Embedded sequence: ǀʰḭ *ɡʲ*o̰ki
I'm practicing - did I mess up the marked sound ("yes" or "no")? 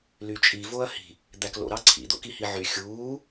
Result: yes